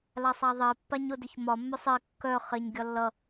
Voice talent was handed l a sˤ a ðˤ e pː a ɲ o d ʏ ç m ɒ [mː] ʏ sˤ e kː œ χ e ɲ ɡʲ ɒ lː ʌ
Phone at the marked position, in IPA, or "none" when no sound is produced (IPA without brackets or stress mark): mː